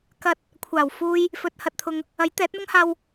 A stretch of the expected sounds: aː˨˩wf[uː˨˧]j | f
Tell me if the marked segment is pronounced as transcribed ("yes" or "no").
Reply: no